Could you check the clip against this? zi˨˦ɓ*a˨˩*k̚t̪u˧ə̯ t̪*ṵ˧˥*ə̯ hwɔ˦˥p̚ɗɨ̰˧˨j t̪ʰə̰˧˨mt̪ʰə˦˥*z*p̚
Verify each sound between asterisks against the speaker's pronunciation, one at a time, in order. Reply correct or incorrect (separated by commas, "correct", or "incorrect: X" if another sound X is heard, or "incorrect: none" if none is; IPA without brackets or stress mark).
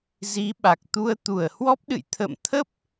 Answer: correct, incorrect: u˧˩, incorrect: none